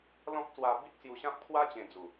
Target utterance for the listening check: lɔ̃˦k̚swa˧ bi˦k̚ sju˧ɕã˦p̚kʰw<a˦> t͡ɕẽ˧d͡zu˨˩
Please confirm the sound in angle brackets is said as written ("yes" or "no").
yes